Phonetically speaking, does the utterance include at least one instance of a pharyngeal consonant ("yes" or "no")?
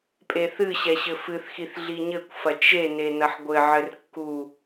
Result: yes